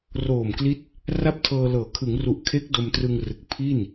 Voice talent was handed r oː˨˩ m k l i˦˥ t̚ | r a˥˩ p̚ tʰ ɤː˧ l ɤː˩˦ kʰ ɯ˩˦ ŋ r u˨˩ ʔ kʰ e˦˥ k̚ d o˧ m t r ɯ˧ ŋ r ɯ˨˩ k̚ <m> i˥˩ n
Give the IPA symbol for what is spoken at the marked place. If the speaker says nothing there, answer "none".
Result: pʰ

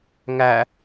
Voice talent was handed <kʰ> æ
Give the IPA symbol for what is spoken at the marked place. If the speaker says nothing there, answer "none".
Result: ŋ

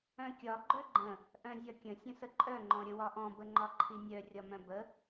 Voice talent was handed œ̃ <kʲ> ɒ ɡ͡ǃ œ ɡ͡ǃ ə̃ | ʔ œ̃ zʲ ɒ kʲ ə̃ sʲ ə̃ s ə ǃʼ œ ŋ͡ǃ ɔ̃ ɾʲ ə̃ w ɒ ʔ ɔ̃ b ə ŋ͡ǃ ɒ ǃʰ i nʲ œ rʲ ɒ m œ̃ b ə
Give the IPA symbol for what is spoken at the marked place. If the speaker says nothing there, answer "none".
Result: kʲ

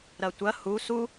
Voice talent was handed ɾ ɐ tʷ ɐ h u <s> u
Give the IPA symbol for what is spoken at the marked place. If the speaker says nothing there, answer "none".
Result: s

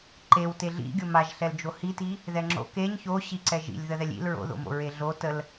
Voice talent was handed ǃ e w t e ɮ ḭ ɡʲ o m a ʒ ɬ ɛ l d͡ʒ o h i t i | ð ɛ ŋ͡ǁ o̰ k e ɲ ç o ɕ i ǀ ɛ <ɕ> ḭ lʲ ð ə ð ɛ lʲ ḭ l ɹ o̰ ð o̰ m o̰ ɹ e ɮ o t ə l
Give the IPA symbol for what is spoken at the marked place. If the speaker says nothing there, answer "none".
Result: ʒ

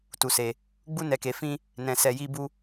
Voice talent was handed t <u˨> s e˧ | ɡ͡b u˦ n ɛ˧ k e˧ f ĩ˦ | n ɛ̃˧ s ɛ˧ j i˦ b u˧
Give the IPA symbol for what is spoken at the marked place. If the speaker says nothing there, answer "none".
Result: u˧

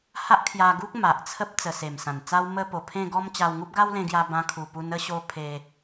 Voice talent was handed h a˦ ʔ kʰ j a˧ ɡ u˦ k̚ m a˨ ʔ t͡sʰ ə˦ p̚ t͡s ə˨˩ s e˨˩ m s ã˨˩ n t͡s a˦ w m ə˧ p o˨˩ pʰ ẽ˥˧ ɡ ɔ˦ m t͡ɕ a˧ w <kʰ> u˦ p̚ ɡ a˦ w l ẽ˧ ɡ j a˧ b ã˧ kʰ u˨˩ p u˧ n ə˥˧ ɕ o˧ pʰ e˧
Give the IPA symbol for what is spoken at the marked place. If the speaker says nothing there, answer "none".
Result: ŋ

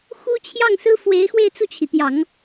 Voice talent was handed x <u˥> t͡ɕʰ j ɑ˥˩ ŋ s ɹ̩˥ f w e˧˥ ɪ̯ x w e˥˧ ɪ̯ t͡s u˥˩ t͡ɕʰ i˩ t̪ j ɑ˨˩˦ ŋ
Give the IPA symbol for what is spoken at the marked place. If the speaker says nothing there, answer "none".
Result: u˥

